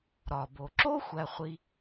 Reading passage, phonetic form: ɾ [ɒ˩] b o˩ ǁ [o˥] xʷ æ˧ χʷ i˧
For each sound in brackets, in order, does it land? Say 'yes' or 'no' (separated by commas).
yes, yes